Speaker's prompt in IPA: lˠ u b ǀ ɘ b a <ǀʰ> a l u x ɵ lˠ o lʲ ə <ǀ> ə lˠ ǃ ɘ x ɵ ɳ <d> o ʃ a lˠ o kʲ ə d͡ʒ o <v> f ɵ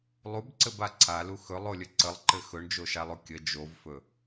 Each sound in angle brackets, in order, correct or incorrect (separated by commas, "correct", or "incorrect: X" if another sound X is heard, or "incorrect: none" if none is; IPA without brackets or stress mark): correct, correct, incorrect: d͡ʒ, correct